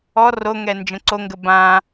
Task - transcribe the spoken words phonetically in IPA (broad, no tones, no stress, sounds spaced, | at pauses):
ɔ r o ŋ ɛ n d͡ʒ ə̃ ǀ o ŋ ɡ ə b ã